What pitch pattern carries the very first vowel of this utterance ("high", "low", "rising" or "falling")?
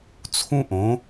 high